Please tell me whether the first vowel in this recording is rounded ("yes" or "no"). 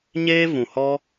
no